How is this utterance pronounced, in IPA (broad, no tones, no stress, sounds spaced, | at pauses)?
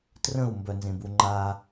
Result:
t r ə̃ u̯ m b œ n z ẽ b u ŋ͡ǃ a